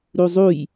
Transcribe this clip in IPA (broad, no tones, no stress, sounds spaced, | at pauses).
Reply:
ɾ u zˤ u j